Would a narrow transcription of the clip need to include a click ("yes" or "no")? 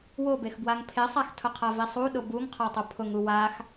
no